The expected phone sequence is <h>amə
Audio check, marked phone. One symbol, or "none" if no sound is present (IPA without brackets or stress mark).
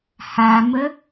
h